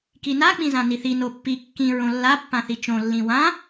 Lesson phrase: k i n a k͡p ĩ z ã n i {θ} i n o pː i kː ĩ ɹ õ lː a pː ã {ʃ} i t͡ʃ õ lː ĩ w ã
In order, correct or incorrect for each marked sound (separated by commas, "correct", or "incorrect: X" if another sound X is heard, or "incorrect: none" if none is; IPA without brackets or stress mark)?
correct, incorrect: θ